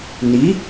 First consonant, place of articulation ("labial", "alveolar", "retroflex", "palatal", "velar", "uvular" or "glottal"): alveolar